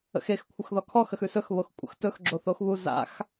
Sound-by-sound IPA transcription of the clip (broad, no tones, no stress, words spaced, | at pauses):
ə̰xexkʷʰəx ðɔkʰɔxəxʉ sɵxβox kʷʼə̰xtɵx ɡ͡ǁoθoxβu za̰x